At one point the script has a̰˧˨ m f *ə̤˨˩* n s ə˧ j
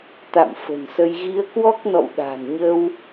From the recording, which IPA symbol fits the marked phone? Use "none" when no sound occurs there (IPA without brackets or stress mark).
ə̤˨˩